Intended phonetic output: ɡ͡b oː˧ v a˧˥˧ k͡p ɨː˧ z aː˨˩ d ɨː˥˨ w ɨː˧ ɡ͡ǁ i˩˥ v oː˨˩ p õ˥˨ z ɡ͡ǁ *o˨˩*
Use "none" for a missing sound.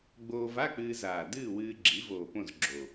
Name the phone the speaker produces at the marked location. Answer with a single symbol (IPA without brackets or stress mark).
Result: o˨˩